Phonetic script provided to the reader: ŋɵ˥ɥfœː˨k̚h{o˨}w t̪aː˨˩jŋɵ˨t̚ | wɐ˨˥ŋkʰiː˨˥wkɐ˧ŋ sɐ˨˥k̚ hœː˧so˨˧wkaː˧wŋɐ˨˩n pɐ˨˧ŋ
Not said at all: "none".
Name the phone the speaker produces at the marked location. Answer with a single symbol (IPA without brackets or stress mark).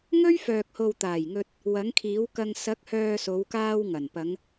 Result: o˨